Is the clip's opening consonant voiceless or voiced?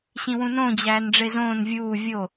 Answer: voiceless